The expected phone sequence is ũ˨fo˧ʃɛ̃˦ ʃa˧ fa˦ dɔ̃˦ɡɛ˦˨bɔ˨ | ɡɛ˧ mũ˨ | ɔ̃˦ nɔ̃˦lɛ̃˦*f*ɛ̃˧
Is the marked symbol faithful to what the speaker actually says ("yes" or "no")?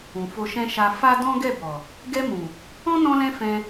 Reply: yes